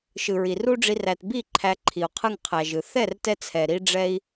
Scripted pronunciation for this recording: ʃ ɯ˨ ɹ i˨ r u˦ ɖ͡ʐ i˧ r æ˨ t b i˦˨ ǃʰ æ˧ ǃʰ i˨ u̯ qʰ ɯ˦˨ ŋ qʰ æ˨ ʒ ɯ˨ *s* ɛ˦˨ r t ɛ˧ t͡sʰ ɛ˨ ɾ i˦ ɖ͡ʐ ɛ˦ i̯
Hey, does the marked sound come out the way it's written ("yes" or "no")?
no